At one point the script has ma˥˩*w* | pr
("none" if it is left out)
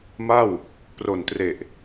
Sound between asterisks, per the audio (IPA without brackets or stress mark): w